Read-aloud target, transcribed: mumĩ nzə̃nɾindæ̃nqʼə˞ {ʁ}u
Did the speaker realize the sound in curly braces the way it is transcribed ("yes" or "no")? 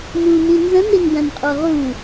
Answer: yes